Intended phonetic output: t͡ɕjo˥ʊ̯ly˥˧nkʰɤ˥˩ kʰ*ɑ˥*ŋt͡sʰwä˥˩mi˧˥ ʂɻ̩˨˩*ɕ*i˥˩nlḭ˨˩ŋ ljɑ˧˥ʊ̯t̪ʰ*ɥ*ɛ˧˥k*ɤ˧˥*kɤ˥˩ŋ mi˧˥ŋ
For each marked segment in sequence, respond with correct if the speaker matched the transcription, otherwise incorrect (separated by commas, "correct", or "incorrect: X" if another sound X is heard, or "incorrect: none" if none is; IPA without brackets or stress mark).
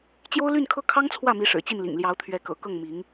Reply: correct, incorrect: t͡ɕ, correct, incorrect: ɤ̰˨˩